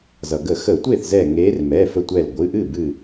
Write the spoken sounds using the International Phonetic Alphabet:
z ʌ˩ ɡ ə˧˩˧ x ə˧˩˧ tʷ e˥˩ θ z ɛ˧˩ ŋ e˨˦ r m ɛ˩˧˩ f ə˧˩ tʷ ɛ˧˩ l ɡʷ ɨ˩˧˩ ʔ ɨ˥˩ b ɨ˧˩

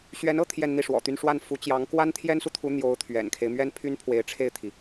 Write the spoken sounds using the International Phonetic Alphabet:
ɕ ɥ ɛ˧˥ n ɤ˥ t̪ʰ j ɛ˥˧ n n̪ i˥˩ ʂ w ɔ̰˨˩ t̪ y˥˧ n ʂ w a˥˩ n f u˧˥ t͡ɕ j ɑ˧˥ ŋ k w a˥ n t̪ʰ j ɛ˥ n s u˨ t̪ʰ u˧˥ n̪ j o˧˥ ʊ̯ t̪ʰ ɥ ɛ̰˨˩ n kʰ e˦ ɪ̯ m ɥ ɛ˥ n pʰ y˥ n pʰ w e˧˥ ɪ̯ ʈ͡ʂʰ e˥˩ ɪ̯ t̪ʰ i˩

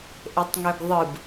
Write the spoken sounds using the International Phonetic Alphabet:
ʔ e tˤ ŋ ø ɡ ðˤ ɯ b

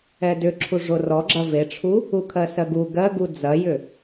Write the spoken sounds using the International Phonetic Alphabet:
ɛ d ʏ ǁʰ u ʐ o r ɔ ɡ͡ǁ ɐ v e ʈ͡ʂʰ u | u kʰ ɜ s ɜ ɡ u ɡ ɜ ɡ u d͡z ɐ j ʏ

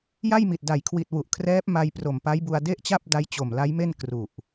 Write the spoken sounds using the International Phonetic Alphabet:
j a˥˩ j m i˨˩ t̚ d a˨˩ j kʰ w i˨˩ t̚ w u˨˩ ʔ kʰ r ɛː˦˥ p̚ m a˧ j p r o˨˩ m p a˦˥ j b u˧ a̯ d e˥˩ ʔ t͡ɕ a˥˩ p̚ d a˦˥ j t͡ɕ o˨˩ m l a˦˥ j m e˥˩ n k r u˨˩ ʔ

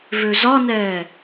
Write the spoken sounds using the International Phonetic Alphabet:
v ø z ɒ n ɛː

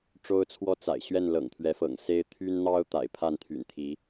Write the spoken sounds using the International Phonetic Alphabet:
ʈ͡ʂ o˦ ʊ̯ t͡sʰ w ɔ˦ t͡s a̰˨˩ ɪ̯ ɕ ɥ ɛ˥˨ n l ɤ̰˨˩ ŋ t̪ʰ ɥ ɛ˨˦ f ɤ̰˨˩ ŋ s e˦ ɪ̯ t̪ʰ y˦ n n̪ ɑ˦ ʊ̯ t̪ a̰˨˩ ɪ̯ pʰ a˥˨ n t̪ʰ y̰˨˩ n t̪ʰ i˨˦

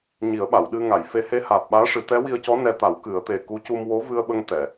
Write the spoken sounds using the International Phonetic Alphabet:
ɲ i˨˩˦ ə̯ ɓ a˨˩˨ w ɗ ɨ˧ ŋ a˨˩˨ j f e˧˥ h e˧˥ h aː˨˩ p̚ ɓ aː˧˥ ʂ ɨ˨˩˦ t̪ ɛ˧˥ w i˧ ə̯ c ɔ˧˥ n ɛ˧ t̪ a˨˩˦ w k ɨ˨˩˦ ə̯ t̪ e˨˩ k u˧˥ c u˧ m w o˧˥ v ɨ˧ ə̯ ɓ ə˧ ŋ t̪ ɛ˨˩˨

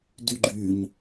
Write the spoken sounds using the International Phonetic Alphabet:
d y ɡ͡ǃ y ɲ

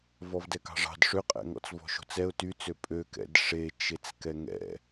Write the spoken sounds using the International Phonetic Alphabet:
v ɔ v d ɛ k ɑ̤ ʐ ɑ̤ d ʂ ø qʼ ɛ̰ ŋ ɔ̰ t͡s v ɔ̤ ʃ o̤ t͡s ɛ ʊ̯ t y t͡s ø pʼ ø k ɛ̰ d ʂ e t͡ʃ e t͡s k ɛ ŋ ɛ̰

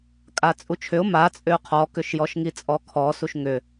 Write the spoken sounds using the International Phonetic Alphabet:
kʼ a t͡sʼ u t͡ʃʰ ʏ ʊ̯ m a t͡sʼ ʏ ʊ̯ qʰ ɔ k ʏ ʃ j ɔ ʃ ŋ i t͡sʼ ɔ kʰ ɔ s u ʃ ŋ ʏ

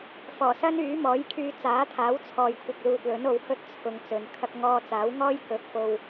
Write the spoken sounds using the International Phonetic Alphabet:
f ɔː˨˩ s ɐ˥ n yː˨˥ m ɔː˨˥ j kʰ yː˧ t͡s aː˨˥ t̪ʰ aː˨˥ w t͡sʰ ɔː˨ j kʷʰ ɪ˨ k̚ l uː˨ t̚ l ɵ˨˥ n o˨˧ w h ɵ˥ t̚ t͡sʰ ʊ˨ ŋ t͡s ɵ˨ n kʰ ɐ˥ k̚ ŋ ɔː˧ t͡s aː˨˥ w ŋ ɔː˥ j k ɵ˨˥ t̚ f o˨ w

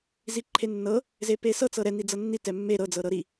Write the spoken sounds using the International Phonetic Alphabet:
z i ǃʰ e nː ɤ | z e p e s ɤ t͡s ɤ ɾ ɛ n i d͡z ɤ nː i t ɛ mː e ɾ ɤ d͡z ɤ ɾ ɤ ɾ i

